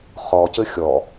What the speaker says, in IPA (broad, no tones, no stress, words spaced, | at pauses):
χɔcɘ xʲɔ